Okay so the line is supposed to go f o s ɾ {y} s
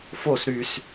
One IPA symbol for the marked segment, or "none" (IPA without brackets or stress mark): y